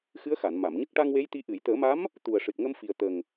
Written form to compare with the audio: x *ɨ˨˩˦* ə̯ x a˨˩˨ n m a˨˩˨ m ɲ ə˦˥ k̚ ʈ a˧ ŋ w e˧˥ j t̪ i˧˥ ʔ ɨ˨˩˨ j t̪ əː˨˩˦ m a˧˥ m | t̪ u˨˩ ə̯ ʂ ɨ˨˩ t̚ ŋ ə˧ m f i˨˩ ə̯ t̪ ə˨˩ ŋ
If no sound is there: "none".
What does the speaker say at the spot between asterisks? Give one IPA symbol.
ɨ˧˥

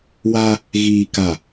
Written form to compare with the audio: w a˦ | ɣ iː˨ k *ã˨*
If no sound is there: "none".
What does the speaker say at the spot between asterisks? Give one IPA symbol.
a˨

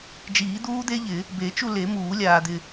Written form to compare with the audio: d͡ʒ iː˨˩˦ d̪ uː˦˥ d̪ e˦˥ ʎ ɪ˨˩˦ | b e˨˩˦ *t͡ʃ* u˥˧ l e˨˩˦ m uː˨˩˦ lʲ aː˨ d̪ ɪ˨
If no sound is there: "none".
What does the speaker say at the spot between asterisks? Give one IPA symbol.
t͡ʃ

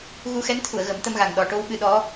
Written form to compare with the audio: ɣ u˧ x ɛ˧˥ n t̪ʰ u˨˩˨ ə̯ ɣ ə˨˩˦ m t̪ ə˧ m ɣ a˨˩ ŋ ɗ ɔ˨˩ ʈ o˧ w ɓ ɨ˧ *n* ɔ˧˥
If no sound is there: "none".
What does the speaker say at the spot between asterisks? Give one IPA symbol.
ɗ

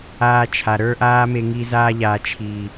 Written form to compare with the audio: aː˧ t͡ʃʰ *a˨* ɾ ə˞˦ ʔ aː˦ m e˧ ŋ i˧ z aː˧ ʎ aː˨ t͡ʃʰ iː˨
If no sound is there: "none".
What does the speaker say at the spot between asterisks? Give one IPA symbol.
a˨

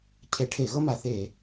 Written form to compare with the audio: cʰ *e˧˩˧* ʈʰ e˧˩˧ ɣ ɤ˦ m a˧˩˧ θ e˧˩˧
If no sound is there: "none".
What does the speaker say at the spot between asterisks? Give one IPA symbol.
e˧˩˧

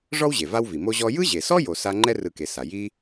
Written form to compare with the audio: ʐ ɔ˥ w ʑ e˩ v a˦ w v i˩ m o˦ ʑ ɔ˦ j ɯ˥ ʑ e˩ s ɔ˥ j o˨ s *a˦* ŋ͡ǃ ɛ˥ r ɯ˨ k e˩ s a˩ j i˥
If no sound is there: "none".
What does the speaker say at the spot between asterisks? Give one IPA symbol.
a˦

